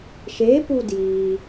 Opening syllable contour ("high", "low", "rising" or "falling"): rising